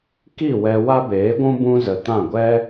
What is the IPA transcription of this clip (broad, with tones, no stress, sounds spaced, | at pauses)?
k i˦˨ w ɛ˧ w a˦ b eː˨˦ ɡʷ ũ˦ b ũ˦ z ə˨ t ã˦˨ ɡʷ ɛ˦